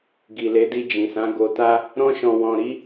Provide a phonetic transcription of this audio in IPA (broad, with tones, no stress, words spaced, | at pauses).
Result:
ɡi˨le˨˦di˧ d͡ʒĩ˨sã˨˦ ɡo˧ta˦ | ɾɔ̃˧ʃɔ̃˨wɔ̃˨ ɾi˨˦